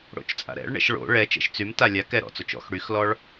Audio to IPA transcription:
ɽ o̰ t͡ʃ t͡sʼ a̰ ɾ ɛ̰ ɭ ɳ ɛ̰ ʃ ɭ o̰ ɭ ɛ t͡ʃ ɛ̰ ʃ t͡s y m t a lʲ a k ɛ ɾ ɔ̰ t͡s o t͡ʃ ɔ̰ x ɽ y x l ɔ ɭ

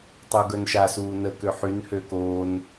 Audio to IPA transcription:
tˤ u ɡ œ n ʃ a s uː n ə k ø ħ y n h ø k oː n

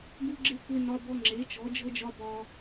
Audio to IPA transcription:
ɡ u˦ ɡ͡ǁ e˦ kʷ e˦ n ɒ˦ b ɔ˦ ŋ͡ǁ e˨˦ t͡ʃ ɔ˨˦ d͡ʒ ɤ˦ d͡ʒ ɒ˦ b ɒ˦

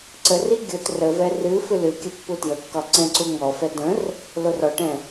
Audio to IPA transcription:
ǀ ə r i ɡʲ o t r ə v ɛ r ɨ f ɨ l ɨ kʲ ə pː u t j ə kː ɒ ǀ ɛ̃ ǀ u ŋ ɔ f ɛ d ə̃ r | l o r ɔ ʈ ɛ̃

